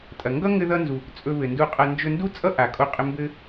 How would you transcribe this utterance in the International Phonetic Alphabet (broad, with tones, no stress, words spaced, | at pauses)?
tʼɐ˩ŋɡʌ˥ ŋɘ˧ðʌ˧nzu˩ | t͡sʼɵ˧βɘ˩ndu˧qʼʌ˧ nd͡ʒɵ˧ndu˥t͡sʼʌ˥ ʔa˩kʼo˧qʼɘ˧ mbɘ˧